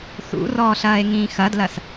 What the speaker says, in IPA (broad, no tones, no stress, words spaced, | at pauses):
θṵrɔːɬɐːe̯ŋĩː xɐdlɐs